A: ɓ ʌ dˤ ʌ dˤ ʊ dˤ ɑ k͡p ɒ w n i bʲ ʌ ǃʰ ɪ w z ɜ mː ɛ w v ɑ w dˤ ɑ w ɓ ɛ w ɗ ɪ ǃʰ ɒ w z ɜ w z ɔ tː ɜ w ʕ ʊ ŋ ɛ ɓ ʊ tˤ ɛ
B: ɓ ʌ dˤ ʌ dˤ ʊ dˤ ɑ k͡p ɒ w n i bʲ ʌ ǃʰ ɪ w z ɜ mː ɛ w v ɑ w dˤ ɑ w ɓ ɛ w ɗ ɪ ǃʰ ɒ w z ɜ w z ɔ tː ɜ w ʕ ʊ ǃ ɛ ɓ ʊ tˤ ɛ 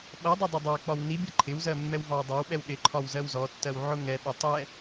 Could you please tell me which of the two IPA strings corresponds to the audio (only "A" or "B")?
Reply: A